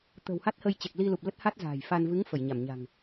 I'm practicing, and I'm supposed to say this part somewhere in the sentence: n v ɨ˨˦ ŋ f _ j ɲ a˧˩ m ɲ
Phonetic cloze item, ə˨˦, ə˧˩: ə˧˩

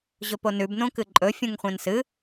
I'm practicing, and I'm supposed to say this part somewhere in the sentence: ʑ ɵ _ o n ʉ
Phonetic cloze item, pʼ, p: p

